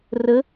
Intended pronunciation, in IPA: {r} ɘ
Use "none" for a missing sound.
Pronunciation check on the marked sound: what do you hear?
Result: r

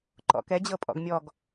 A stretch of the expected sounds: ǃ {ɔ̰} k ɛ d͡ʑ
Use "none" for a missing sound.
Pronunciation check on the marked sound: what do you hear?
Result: ɔ̰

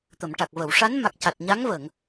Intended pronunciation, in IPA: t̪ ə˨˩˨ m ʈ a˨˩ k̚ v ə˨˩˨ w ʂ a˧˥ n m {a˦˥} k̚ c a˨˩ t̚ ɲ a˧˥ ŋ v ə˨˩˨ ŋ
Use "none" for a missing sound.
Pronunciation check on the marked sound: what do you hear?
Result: a˨˩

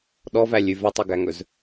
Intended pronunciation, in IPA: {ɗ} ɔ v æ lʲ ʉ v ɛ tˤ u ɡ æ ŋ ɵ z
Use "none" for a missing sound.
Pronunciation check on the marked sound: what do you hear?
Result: ɗ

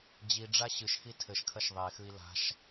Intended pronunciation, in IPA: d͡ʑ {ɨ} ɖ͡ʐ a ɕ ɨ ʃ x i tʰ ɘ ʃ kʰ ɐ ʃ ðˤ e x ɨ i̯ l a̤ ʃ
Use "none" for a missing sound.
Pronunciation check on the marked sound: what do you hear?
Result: i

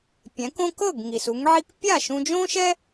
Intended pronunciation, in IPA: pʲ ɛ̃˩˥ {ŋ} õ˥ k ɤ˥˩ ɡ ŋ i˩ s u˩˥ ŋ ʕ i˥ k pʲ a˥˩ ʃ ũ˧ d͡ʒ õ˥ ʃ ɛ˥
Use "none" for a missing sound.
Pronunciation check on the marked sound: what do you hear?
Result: k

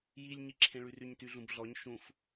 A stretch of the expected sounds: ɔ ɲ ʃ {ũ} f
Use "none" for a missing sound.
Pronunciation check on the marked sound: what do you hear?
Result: ũ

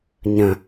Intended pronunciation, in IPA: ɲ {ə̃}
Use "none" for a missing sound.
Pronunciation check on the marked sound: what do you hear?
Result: ə̃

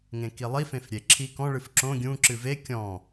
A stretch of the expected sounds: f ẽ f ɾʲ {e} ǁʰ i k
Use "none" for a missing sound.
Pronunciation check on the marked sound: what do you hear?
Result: e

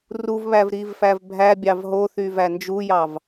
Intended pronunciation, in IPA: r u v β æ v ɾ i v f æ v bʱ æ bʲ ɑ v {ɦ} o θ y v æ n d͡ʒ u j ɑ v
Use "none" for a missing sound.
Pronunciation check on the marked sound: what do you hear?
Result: ɦ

